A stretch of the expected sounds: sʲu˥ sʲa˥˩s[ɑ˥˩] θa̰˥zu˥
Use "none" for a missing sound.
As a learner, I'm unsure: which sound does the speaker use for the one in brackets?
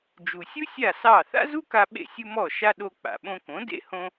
ɑ˥˩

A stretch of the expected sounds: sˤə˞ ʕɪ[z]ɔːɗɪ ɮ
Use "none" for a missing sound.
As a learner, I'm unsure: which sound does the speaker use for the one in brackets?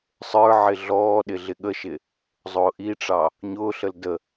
ɮ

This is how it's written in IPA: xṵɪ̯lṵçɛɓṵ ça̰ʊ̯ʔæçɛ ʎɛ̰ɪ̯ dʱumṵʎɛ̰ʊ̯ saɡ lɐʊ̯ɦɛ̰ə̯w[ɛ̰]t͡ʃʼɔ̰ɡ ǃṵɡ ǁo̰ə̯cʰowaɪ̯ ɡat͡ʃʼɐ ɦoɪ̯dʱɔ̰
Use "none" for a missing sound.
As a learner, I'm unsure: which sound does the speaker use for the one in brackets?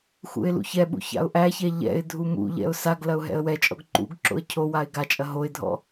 ɛ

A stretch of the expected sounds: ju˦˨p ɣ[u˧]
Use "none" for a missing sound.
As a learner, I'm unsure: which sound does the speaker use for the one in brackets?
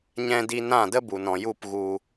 u˧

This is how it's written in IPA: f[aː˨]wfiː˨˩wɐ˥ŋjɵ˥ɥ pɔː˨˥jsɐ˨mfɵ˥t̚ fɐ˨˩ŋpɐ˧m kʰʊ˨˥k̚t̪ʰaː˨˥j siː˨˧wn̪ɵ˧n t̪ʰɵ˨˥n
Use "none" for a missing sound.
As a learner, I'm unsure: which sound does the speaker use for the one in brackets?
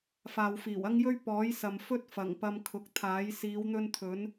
aː˨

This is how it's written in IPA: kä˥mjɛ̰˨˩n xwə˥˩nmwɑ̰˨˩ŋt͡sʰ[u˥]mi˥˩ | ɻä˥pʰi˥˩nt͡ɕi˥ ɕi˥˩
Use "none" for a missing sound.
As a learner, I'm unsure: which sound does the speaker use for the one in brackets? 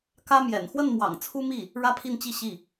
u˥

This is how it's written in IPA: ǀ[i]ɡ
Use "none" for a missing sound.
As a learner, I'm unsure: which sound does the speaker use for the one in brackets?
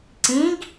ĩ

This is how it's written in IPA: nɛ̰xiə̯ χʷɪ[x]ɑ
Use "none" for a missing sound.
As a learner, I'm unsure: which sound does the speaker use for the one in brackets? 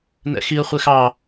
x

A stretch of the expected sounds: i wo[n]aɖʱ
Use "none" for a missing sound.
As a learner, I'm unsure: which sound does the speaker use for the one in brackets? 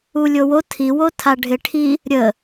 tʰ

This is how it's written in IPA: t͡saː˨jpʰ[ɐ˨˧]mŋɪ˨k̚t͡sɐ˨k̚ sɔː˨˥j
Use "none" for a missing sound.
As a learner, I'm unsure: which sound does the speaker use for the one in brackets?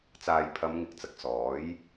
ɐ˨˧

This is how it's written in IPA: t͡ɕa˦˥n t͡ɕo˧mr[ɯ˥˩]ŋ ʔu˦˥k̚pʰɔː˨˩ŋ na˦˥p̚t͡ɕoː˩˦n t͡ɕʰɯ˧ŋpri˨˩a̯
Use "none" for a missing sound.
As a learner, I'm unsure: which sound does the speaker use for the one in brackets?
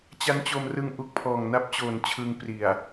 ɯ˧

